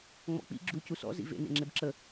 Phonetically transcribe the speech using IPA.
ŋ͡m ɔ̰ k͡p ḭ ɡ͡ǁ u c u s ɔ̰ z ḭ v ḛ n ḛ ŋ͡ǁ e b ǁ ə

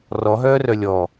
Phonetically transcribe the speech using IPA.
r ɔ ɦ œː r œ lʲ ɔ

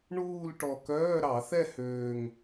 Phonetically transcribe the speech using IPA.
ɳ uː˥˧ l ʈ ɔ˨˩ k œː˧˥˧ ɾ ɑ˧˩˧ θ ɛ˥˧ h øː˨˩ ŋ

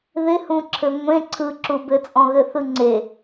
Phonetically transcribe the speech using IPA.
ð ɪ h ũ ǁʰ ɘ ŋʷ ẽ ǀʰ ɯ ǁ u b ɘ t͡sʼ ɔ̃ ɣ ɘ θ ɯ ŋ͡ǀ e

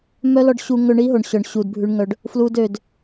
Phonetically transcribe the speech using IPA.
m œ˦ l ɔ˧ ɖ ɕ u˧ ŋ ɵ˧ ɳ i˦ ɦ o˨ ɳ ɕ œ˨ ɳ ɕ u˨ d bʱ ʉ˧ ɳ ŋ œ˧ ɖ | f l u˦ d ø˧ d

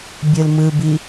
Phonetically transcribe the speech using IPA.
bʲ ɯ l m ɯ b i

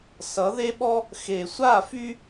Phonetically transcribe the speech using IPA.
s ʌ˨˦ ð e˦ ɓ ɔ˦ | x e˨ sʷ a˦˨ f y˦

